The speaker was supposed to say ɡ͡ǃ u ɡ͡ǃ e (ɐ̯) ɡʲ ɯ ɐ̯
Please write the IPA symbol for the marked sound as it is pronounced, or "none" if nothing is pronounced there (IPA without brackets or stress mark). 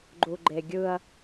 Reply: none